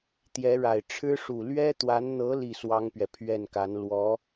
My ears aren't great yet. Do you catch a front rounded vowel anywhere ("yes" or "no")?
no